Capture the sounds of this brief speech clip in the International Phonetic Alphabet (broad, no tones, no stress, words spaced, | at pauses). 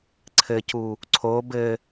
ǀʰɘcu | ǀʰob ɘ